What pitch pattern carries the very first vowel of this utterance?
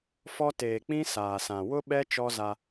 high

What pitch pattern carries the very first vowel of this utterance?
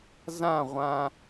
falling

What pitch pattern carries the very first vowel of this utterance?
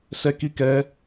high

